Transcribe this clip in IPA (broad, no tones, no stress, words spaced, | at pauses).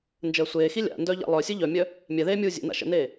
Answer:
nd͡ʒəːsʷeːxi lʲa̰ndœ ʎa̰lˠœsʲɨ ʎœmʲœ | mʲɛðeː mʲuːzʲḛna̰ ʃə̰neː